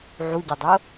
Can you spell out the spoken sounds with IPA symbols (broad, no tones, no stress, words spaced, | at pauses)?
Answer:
ʕuɟʌdˤo